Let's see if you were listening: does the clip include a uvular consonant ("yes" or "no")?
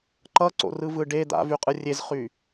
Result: yes